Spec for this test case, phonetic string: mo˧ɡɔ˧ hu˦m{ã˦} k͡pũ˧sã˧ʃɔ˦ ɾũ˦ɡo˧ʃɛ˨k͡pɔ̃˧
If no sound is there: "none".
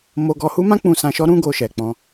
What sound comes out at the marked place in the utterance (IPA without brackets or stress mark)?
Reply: ã˦